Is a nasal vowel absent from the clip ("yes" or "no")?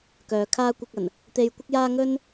yes